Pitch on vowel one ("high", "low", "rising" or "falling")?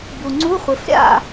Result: low